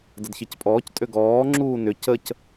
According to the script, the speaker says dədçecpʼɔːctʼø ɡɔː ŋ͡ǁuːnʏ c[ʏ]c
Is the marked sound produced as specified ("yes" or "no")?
no